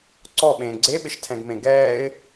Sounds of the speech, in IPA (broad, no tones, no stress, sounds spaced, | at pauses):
ǀ ɔ ɓ ẽː ɡ͡ǀ e ɓ ɪ ʃ tʰ ɛ̃ ɡ m ẽ ɡ ɛː ɪ̯